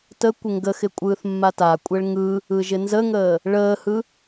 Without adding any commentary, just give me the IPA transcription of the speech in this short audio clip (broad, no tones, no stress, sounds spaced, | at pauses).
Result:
t ə kʷ ɪ ŋ ɡ ə x ɪ kʷʼ ɯː θ mː a t a kʷʼ ɛ ɭ ŋ ɯ | ɯ ʒ ɪ n z ə ŋ əː | ɭ əː h ɯ